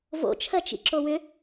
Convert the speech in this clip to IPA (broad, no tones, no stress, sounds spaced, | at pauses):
v o̰ t͡ʃʰ ɜ t͡ʃ ḭ ǁ o w ʏ